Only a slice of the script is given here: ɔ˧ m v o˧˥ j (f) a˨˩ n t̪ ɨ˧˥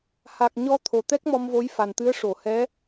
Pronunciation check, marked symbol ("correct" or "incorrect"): correct